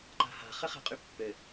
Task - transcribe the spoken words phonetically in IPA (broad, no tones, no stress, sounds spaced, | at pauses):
ǃ a̤ h a̤ χ ɘ χ ɛ̤ qʼ y pː ɘ